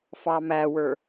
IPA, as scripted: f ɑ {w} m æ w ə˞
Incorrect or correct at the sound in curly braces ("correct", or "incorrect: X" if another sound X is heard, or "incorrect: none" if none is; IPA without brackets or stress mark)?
incorrect: none